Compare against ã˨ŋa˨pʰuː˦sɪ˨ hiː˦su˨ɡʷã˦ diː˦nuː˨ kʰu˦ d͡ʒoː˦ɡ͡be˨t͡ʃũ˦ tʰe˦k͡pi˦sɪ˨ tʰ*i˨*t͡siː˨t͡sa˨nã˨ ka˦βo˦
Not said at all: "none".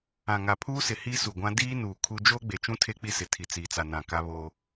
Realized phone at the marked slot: i˨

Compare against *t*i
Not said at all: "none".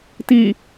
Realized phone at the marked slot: t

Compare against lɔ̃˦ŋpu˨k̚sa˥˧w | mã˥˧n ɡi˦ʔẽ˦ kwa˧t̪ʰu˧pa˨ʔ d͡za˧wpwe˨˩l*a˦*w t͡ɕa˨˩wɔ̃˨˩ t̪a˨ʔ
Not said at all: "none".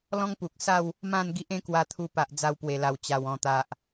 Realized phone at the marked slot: a˨˩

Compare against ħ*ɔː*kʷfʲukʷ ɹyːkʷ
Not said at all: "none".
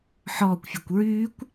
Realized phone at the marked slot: ɔː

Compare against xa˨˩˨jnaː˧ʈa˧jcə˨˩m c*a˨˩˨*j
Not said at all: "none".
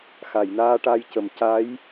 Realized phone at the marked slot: a˧˥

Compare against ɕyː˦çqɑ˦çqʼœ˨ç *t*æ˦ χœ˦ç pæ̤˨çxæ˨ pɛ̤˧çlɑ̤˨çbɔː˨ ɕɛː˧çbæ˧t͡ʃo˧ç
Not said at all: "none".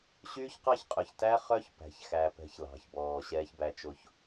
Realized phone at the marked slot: t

